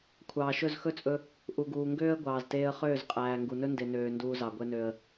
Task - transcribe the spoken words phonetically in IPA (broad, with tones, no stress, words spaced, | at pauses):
kʷʰɑː˨ʃɵ˦˨zxɵ˦t͡sʼɵ˧ | ʔu˨ɡuː˨ŋɡøː˦ə̯ ɡʷɑː˨zteː˧ə̯χøː˦˨z qʼæː˨ŋɡu˨nɵ˦ nde˨nøː˨ nduː˧zɑ˨ ɡʷɛ˧nø˨ə̯